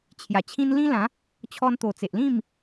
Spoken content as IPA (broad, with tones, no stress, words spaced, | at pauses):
t͡ɕʰja˨˩t͡ɕʰĩ˦n lĩ˦lã˨˦ | t͡ɕʰɔ˧nt̪o˨˩t͡se˨ʔ lĩ˥˧m